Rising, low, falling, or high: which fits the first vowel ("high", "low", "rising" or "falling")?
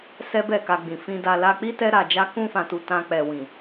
high